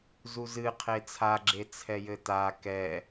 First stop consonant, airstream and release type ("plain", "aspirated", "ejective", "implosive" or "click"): aspirated